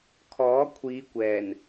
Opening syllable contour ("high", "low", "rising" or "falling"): rising